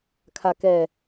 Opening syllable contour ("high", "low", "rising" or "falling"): low